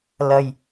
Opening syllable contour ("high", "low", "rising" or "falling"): low